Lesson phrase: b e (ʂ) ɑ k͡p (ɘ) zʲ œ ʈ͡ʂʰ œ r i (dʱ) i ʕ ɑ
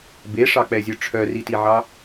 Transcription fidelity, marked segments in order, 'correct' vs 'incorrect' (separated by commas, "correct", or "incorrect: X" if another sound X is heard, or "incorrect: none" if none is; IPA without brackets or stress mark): correct, incorrect: ɛ, incorrect: t